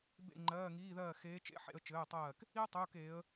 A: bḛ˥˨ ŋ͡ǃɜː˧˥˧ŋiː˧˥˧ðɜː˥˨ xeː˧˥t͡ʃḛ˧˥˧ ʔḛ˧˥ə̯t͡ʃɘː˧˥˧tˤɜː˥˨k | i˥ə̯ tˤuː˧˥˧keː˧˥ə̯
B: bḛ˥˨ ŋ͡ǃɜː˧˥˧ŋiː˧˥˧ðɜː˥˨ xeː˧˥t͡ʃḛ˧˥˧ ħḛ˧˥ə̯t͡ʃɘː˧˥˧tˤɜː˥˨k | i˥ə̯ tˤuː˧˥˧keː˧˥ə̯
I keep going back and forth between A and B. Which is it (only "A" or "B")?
B